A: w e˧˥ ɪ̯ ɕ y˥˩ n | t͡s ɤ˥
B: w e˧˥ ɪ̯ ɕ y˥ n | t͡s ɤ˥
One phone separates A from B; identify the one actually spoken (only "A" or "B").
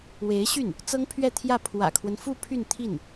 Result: A